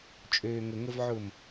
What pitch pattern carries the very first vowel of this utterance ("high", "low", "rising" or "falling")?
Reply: low